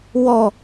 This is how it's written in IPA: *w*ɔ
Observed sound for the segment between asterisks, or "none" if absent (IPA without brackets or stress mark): w